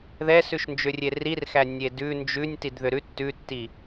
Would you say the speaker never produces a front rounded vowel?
no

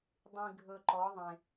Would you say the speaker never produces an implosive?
yes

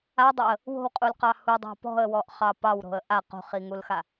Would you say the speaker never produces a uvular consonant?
no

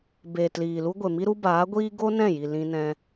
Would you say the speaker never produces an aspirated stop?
yes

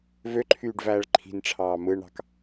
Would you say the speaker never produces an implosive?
yes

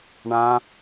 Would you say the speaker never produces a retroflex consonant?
no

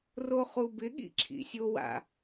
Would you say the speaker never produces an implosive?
no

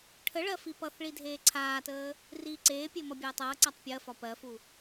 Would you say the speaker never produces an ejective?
yes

